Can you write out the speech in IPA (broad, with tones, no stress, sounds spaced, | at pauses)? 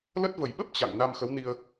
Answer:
l ə˦˥ t̚ v ə˨˩ j ɓ ə˦˥ p̚ t͡ɕ a̰˧˨ ŋ n a˧ m x ə˨˦ w n i˧ ə̯